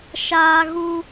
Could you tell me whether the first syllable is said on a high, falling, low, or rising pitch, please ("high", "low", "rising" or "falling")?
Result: high